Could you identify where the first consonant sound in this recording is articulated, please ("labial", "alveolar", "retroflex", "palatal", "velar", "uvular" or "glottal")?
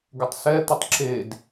velar